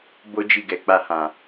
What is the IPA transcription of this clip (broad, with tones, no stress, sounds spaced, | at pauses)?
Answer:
b o˦ d͡ʒ i˦˨ ɡ ɛ˨˦ k͡p a˧ h ã˨